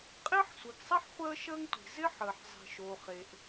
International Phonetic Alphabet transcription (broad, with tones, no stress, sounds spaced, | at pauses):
qʼ ɪː˥ ħ sʷ ɨ˩ ɡ sˤ i˥ ħ χʷ əː˥ ʃ əː˥ ŋ tʷ i̤˩ z ɪ˥ ħ əː˩ ħ zˤ i̤˩ ʃ oː˩ χ e˩ ʔ